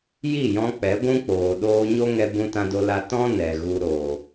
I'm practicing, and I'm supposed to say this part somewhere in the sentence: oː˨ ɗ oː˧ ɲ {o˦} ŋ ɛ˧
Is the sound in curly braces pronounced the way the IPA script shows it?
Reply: yes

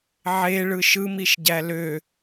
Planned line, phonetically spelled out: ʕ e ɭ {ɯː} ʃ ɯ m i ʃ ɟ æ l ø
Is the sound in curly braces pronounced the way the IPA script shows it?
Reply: no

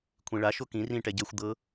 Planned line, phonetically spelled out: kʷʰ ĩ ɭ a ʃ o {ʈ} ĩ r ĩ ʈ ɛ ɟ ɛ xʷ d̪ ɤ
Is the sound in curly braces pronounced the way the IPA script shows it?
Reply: no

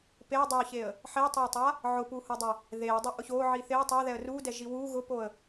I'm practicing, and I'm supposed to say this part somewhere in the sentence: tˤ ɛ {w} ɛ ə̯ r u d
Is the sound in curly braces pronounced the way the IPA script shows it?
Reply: no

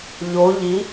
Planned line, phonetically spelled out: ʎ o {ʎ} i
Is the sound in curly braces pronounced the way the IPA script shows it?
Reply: yes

